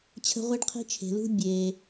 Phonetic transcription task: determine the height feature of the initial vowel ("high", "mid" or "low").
mid